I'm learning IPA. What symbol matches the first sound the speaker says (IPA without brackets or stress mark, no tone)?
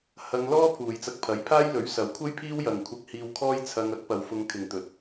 h